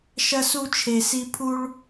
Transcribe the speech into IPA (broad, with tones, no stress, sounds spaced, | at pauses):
ʃ ɐ˥ s u˥ t͡ʃʰ e˦ s i˥ pʰ u˥ ɭ